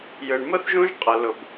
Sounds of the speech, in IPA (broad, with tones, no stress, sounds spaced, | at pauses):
j ɯ˩ ɳ m ə˥ θ ʒ ũ˥ ʒ qʼ ə˩ l ʊ˩ b